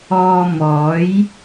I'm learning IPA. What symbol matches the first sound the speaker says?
ɔː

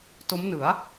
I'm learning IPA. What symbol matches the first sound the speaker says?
t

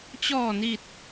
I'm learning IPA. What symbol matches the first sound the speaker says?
t͡ɕ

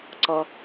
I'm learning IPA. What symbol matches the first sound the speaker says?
ǀ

